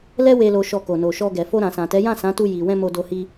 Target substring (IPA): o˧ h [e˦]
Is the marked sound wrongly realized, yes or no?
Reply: yes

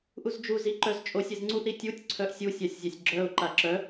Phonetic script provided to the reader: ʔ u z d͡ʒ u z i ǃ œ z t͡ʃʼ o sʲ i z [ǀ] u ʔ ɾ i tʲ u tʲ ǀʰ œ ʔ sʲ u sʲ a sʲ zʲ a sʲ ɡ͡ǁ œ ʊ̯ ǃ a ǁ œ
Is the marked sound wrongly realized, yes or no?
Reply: yes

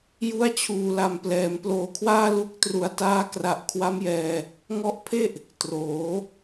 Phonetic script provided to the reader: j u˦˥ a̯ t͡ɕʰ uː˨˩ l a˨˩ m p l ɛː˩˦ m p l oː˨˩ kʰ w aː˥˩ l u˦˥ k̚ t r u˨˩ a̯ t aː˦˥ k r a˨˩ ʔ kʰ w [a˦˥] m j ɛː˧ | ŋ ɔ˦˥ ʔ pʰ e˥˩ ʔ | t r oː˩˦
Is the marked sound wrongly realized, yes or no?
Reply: no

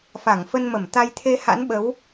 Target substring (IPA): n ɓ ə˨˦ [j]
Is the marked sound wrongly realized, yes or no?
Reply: yes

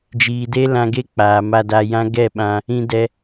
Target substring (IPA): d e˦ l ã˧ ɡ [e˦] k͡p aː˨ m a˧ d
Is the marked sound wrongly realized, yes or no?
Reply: no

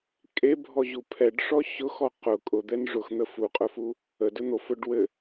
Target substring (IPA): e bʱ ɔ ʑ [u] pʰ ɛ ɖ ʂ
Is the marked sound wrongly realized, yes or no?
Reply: no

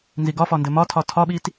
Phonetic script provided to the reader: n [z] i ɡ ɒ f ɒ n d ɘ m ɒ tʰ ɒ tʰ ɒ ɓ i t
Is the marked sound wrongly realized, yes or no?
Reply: no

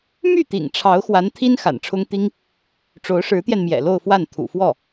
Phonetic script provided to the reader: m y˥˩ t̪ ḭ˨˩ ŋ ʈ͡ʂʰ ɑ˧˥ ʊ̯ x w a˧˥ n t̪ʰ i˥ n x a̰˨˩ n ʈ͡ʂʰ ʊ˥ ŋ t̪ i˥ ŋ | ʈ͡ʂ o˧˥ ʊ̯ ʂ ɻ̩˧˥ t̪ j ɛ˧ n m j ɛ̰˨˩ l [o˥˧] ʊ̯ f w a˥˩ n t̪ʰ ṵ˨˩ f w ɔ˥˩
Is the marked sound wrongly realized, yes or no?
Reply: no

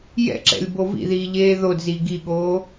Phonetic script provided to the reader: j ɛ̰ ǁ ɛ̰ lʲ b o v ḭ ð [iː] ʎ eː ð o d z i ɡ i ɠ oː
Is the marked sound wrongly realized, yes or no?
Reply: no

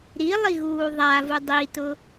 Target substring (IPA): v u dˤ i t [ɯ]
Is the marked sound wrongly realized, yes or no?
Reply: yes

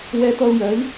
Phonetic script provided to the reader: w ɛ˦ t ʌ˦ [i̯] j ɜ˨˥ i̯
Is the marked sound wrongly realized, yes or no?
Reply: yes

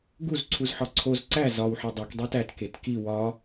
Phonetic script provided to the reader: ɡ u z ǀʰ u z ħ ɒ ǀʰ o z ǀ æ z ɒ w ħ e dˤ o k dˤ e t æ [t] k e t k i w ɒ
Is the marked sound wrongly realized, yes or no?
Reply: no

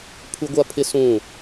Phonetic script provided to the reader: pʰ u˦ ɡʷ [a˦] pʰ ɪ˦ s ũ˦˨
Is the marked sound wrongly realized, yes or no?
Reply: no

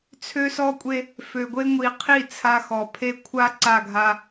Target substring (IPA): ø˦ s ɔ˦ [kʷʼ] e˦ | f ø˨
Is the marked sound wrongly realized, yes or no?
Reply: no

